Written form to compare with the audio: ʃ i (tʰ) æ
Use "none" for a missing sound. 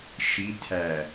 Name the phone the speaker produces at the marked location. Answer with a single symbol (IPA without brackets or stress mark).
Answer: tʰ